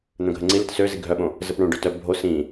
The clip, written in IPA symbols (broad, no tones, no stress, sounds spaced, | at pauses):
n̪ œ̃ ɡʱ ə ŋ͡ǀ i l ɪ t s ø z i ɡʱ œ ɓ õ | z ə p ɳ õ ɖ ø t œ bʱ o s ĩ